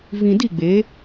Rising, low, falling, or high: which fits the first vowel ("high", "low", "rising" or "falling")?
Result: low